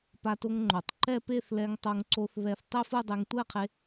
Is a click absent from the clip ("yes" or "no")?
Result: no